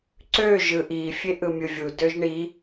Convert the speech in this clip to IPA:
ǀ ø ʒ ɯ ʔ i fʲ e ʔ ɯ mʲ ɯ vʲ u d ø ʒ ɳ i

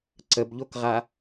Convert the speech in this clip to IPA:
ǀ ə b ʎ o k ʁ a

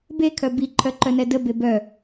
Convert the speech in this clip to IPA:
b e kʰ œ b i ǃʰ œ ǃ œ n ɛ d ə b e b œ

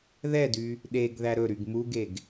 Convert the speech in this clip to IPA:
ð ɛ d y | ɗ e ɡ ð æ ɾ ɵ ɾ y ɡ m u ɡ e ɡ

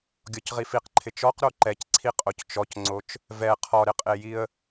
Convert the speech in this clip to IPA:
ɡʲ ɔ c ʁ i f i q ǃʰ ɪ t͡ʃ ɔ q ɾ o ǃ ɛ c ǀʰ i qʼ o c t͡ʃ ɔ c ŋ͡ǀ o t͡ʃ | v ɛ qʰ ɔ ɾ ɪ qʼ e j i ə̯

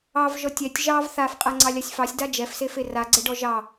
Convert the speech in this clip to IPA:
ɑ v ʒ ɔ tʲ ɛ tʲ ʒ ɑ v θ a f qʼ a ŋ͡ǀ ɑ lʲ a sʲ f ɑ sʲ d a d͡ʒ ɛ f s e f e r a ɡ͡ǀ ɛ ɖ ɔ ʒ ɑ

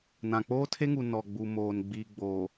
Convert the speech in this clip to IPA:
n ã˨ k͡p oː˦ tʰ e˦ ŋ u˨ n ɔ˨ ɡ͡b u˨ m oː˨ n ɡ͡b iː˨ ɡ͡b oː˨

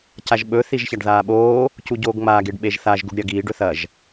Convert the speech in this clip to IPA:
c a ʒ ɓ ɵ θ i ʒ ç a ɖ ð aː ɓ oː | c u ɟ oː ɡ ŋ͡m a ɡ e ɖ ɓ e ʒ θ a ʒ ɡ u ɖ ɾʲ ɐ ɡ iː ɖ ɵ θ ɐ ʒ

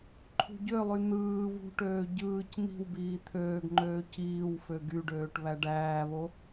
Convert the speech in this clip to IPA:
ǃʰ ṳ ɟ ø lˠ y n̪ ɯː β ṳ ʈ øː ɟ ɯː c n̪ i̤ w b iː t̪ʰ øː ɡ ŋ͡ǃ øː c iː w f ø ɡ y ɖ øː ʈ β æ ɖ æː β o

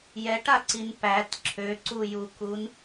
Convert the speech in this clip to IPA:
j ɛ ʈ a ǀ i n p æ t ǁʰ ø ǀ u j u k u n

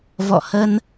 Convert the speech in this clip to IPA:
v ɔ̰˧˨ h ə˧ n

